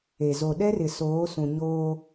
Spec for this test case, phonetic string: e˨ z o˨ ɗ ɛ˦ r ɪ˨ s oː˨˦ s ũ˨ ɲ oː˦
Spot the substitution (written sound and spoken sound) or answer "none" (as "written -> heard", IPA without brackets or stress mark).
none